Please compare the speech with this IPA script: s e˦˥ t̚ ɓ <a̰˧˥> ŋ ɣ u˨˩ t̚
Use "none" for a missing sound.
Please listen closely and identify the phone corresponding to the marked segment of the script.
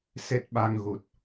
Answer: a˧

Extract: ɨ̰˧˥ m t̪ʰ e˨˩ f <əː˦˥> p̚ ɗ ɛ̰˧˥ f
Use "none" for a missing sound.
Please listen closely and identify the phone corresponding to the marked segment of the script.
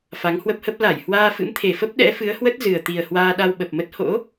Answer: ə˦˥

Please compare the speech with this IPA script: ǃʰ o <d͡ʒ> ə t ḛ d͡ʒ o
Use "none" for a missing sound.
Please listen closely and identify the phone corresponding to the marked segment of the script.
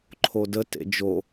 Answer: d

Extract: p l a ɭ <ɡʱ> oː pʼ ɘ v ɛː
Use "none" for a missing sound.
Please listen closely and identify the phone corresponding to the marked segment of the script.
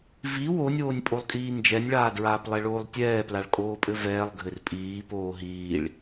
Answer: kʼ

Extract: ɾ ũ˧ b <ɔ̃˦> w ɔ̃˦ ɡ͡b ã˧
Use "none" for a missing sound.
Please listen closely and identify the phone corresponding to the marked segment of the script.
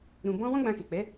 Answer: ɔ̃˦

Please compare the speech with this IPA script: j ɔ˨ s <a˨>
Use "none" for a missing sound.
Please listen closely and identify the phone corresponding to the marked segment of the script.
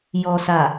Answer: a˨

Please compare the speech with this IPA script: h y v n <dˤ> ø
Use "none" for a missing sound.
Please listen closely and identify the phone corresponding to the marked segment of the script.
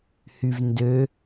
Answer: d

